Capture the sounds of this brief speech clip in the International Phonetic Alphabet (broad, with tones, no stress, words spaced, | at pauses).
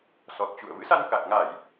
sɔ˨˩t̚ t͡ɕṵ˧˨ə̯ vɨ̰˧˥sa˧nkaː˨˩k̚ŋa˧˩˨j